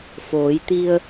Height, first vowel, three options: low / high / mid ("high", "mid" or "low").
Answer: mid